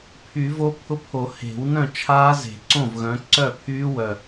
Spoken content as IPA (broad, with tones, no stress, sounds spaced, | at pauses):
pʰ y˨˩˦ v o˦˥ pʰ ʊ˦˥ pʰ o˨˩˦ h e̤˨˩˦ w n œ̃˥˩ t͡ʃʰ aː˦˥ z e̤˨˩˦ ǀ õ˥˩ v ɣ œ̃˨˦ ǀ œ˥˩ pʰ yː˦˥ w œ˧˩